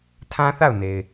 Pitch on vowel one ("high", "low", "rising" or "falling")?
high